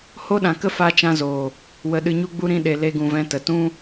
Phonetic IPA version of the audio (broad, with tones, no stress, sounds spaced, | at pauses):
h o˦ ɗ ã˨ k ə˦ f a˦ t͡ʃ ã˦ z oː˨ | w ə˧ ɗ ɨ˧ ɲ u˦ ɡ͡b u˦ ɾ ĩ˧ ɗ e˨ l e˧ ɡ ũ˨ v ɛ̃˧ t ə˨ t ũ˦